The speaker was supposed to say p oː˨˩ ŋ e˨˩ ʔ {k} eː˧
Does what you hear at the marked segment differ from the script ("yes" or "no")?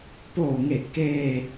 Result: no